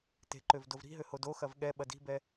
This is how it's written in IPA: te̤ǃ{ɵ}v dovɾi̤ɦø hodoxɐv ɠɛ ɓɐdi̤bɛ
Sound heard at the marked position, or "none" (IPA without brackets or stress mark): ø